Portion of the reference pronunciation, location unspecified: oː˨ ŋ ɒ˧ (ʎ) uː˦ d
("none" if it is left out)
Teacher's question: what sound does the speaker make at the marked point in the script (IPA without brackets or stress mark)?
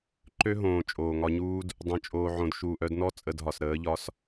ɲ